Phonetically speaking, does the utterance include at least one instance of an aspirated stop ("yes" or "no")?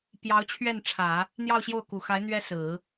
yes